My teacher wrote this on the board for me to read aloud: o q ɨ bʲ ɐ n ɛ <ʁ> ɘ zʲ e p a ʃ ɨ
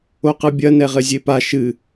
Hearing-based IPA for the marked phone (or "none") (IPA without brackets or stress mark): ʁ